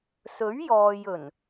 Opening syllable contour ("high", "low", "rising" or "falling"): rising